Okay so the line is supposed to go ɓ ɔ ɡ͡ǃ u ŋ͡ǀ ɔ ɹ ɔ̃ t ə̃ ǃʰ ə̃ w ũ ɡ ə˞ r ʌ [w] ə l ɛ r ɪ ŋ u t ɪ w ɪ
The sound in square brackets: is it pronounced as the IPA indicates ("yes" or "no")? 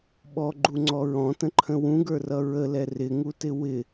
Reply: no